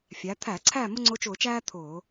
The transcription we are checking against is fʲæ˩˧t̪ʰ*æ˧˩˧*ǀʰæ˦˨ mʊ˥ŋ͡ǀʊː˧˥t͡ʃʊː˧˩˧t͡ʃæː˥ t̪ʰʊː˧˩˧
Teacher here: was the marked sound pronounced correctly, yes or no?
yes